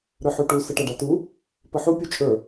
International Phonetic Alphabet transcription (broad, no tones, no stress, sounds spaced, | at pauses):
ɾ ə˞ ħ u ʈ u s ə ʈ a ɖ a t u | p ə ħ u pʲ u t͡ʃʼ ə˞